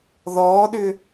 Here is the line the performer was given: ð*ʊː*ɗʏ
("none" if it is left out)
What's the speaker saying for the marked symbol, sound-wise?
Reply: ɔː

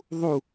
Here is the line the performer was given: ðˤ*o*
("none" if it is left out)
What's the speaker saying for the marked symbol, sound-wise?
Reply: u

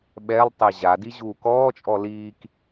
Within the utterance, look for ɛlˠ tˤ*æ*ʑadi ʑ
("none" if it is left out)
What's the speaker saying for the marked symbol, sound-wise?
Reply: ɛ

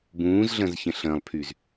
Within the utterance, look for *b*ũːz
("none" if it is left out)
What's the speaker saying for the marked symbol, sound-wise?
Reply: b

